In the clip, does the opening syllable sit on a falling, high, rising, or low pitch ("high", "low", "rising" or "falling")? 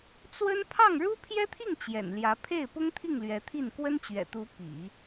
high